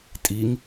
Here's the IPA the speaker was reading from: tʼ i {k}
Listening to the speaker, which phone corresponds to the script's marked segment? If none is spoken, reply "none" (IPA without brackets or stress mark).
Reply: ŋ